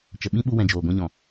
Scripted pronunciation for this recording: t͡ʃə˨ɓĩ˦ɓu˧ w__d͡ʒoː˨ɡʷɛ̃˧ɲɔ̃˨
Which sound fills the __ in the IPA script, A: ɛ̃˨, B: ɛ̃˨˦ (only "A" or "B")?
A